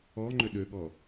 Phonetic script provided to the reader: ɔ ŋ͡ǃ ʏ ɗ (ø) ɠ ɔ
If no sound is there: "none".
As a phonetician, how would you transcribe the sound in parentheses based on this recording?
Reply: ø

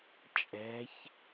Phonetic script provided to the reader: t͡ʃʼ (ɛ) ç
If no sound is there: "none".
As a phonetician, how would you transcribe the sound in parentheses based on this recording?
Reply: ɛ̤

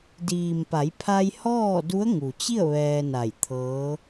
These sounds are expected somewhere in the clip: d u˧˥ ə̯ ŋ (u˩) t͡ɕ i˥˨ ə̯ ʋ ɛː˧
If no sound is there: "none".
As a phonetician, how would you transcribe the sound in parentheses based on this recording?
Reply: u˩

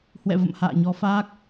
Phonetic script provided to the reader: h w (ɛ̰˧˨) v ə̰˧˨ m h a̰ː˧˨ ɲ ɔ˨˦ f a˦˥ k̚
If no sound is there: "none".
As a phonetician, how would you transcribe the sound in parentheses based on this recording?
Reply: ɛ̰˧˨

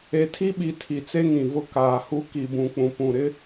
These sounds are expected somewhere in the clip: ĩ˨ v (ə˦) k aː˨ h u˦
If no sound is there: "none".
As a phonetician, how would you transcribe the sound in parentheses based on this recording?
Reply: ʊ˦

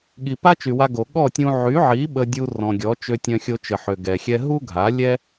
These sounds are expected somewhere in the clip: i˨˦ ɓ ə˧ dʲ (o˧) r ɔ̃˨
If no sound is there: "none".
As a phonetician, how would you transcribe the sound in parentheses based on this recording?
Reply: u˧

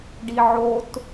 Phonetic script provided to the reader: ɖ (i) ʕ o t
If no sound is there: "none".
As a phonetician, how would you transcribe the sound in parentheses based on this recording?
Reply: i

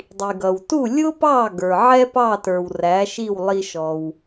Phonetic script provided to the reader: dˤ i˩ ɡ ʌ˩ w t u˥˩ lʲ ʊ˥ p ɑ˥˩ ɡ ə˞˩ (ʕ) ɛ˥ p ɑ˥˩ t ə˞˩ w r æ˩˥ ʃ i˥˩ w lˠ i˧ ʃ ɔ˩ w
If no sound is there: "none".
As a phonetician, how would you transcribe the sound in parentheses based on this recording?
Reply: ʕ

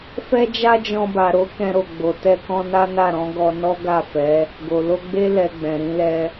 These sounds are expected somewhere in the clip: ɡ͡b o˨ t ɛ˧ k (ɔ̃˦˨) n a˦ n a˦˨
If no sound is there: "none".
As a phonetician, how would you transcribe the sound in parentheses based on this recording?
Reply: ɔ̃˧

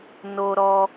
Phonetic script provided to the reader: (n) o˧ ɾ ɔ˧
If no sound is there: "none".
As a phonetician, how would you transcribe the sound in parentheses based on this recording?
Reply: n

